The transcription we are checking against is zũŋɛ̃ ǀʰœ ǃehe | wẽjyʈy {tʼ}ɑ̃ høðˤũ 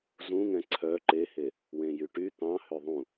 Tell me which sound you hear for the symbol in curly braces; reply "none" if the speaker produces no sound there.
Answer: t̪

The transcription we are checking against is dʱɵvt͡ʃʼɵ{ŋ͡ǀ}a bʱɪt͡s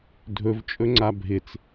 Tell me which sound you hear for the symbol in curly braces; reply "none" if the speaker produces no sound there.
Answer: ŋ͡ǀ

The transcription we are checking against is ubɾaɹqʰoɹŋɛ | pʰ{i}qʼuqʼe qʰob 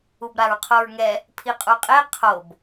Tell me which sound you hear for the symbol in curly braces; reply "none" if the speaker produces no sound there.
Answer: i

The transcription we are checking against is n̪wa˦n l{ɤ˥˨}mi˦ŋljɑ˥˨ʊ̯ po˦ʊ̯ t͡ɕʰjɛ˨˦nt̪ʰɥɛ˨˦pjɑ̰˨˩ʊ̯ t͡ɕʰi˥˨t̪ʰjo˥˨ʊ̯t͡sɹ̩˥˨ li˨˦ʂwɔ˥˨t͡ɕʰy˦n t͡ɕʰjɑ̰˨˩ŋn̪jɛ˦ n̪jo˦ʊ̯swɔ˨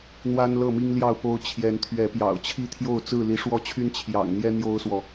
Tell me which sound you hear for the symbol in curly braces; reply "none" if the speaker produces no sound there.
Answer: ɤ˥˨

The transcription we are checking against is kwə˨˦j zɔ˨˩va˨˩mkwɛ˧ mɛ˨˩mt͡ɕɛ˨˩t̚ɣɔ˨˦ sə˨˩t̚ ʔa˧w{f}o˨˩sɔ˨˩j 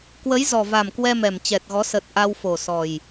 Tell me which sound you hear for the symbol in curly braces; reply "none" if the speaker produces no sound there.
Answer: f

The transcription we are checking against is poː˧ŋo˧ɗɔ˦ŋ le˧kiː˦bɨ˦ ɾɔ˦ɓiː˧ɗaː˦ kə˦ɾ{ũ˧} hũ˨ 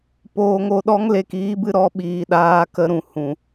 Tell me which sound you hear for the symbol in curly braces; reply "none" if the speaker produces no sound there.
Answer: ũ˨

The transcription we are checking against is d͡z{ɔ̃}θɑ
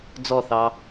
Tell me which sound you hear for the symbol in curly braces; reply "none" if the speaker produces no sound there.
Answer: ɔ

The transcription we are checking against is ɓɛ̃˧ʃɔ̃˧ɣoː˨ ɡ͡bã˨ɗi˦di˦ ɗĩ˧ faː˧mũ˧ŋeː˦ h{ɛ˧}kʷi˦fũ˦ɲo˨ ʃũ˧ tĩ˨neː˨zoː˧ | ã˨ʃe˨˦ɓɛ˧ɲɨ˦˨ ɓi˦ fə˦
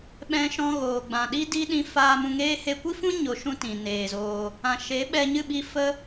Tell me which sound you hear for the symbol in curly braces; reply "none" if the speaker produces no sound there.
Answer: e˧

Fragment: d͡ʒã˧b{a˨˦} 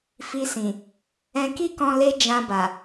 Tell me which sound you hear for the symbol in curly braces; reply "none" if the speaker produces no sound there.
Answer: a˨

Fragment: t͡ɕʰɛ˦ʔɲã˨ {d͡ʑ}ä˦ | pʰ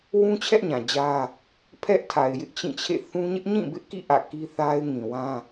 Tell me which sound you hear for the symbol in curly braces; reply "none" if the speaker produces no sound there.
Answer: d͡ʑ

